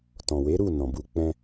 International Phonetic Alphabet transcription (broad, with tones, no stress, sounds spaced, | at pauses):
t ɔ̃˨ w e˨˦ ɾ u˦˨ n ɔ̃˨ b u˧ k͡p ɛ̃˧